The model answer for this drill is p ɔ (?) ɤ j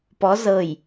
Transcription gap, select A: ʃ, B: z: B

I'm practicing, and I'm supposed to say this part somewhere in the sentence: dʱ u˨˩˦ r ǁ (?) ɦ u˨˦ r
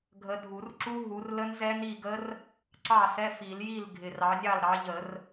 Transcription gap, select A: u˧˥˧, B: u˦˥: B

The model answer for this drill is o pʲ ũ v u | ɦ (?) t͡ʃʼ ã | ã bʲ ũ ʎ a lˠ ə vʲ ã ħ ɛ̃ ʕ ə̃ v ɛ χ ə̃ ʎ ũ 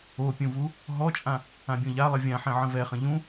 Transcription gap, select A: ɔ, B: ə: A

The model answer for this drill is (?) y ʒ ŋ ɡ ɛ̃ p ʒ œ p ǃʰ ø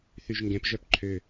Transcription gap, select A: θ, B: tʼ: A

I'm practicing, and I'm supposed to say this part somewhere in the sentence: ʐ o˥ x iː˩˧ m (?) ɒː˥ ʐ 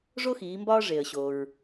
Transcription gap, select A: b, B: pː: A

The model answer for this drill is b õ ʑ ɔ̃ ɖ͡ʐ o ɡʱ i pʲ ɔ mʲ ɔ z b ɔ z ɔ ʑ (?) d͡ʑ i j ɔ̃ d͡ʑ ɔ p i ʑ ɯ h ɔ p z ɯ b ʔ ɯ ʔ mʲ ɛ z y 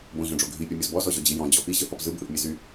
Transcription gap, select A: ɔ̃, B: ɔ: B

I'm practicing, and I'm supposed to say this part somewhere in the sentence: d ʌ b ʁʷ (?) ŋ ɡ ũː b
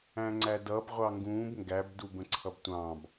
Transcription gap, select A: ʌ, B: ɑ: B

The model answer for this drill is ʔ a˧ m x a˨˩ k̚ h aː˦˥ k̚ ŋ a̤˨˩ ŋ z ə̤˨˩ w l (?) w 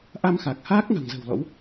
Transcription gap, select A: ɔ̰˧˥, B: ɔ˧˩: A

